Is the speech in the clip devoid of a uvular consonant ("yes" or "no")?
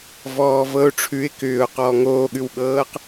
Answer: no